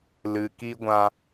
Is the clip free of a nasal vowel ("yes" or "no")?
no